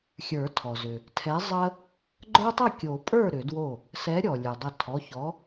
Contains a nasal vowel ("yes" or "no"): no